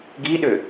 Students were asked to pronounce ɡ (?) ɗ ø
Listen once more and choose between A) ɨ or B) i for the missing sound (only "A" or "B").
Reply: B